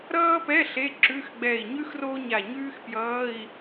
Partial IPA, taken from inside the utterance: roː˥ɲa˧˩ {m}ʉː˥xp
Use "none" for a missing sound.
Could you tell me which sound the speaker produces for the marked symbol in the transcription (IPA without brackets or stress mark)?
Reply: ɲ